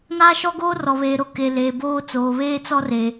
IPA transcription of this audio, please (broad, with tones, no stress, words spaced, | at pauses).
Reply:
ŋaː˦ʃɔ˦ɡoː˦ rɔ˨βe˨ ɾo˨ke˨leː˨boː˦ t͡soː˨βeː˦t͡sɔ˦re˨